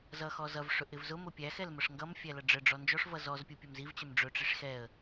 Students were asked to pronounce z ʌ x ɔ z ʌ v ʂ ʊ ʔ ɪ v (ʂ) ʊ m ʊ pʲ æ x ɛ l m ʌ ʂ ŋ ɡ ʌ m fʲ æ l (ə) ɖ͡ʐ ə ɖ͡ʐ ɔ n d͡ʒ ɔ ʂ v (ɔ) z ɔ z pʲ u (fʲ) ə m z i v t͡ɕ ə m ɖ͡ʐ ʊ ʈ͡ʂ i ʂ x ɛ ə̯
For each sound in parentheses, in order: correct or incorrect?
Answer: incorrect, incorrect, incorrect, incorrect

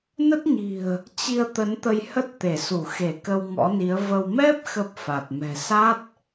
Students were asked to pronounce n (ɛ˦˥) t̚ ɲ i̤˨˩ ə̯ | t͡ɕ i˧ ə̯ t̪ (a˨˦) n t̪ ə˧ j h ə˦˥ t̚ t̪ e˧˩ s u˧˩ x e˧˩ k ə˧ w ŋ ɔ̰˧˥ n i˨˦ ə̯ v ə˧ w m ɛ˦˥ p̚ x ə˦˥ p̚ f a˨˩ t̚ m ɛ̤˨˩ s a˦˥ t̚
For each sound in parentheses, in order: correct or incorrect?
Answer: incorrect, incorrect

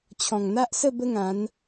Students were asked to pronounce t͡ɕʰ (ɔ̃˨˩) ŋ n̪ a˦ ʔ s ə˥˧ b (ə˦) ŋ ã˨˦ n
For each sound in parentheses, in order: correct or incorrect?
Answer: correct, correct

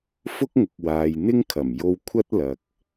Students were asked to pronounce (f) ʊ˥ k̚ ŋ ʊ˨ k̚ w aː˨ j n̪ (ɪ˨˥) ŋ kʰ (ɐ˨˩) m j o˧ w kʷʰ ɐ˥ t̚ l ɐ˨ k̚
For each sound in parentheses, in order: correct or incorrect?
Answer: correct, incorrect, correct

